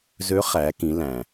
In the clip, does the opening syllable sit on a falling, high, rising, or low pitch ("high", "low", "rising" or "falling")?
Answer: rising